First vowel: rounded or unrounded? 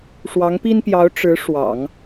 unrounded